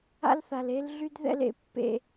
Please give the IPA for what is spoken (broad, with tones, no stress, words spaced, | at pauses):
a̰˦lθa˨le˦l ɮy˦dðɛ̰˦l ḛ˦pːḛ˦